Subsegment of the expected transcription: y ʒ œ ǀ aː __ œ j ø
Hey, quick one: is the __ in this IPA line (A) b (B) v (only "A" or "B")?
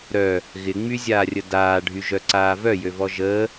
B